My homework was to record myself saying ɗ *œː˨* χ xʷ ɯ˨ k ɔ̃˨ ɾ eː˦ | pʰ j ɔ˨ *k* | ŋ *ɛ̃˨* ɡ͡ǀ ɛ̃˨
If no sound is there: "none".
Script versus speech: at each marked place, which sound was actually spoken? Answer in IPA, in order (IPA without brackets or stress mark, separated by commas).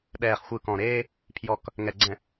ɛː˨, k, ɛ˨